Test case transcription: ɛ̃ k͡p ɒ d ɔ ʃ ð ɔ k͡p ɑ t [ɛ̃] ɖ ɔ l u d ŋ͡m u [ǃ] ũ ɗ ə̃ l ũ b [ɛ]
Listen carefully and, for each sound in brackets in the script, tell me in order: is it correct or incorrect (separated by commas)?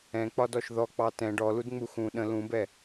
correct, incorrect, correct